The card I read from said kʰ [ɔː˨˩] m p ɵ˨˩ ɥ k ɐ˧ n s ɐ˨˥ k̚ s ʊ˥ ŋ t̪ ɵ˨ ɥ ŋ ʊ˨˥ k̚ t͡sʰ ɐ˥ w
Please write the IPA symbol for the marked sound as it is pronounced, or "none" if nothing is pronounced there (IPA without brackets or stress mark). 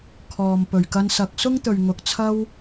ɔː˨